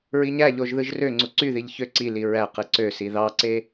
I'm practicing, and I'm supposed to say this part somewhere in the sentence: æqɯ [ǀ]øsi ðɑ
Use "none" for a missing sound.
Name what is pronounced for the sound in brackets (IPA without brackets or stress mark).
ǀ